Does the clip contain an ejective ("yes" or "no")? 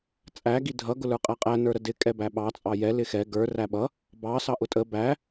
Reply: yes